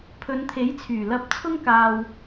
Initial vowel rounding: rounded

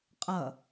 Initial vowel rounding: unrounded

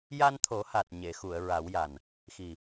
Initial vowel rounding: unrounded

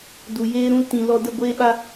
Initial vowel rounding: rounded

